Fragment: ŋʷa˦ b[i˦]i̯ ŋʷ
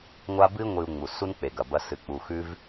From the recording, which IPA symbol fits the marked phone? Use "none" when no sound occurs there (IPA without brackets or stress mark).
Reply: ɨ˦